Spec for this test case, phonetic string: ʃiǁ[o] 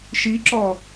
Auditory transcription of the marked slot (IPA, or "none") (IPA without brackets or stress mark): ɔ